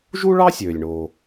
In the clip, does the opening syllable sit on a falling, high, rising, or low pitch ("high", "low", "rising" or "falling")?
high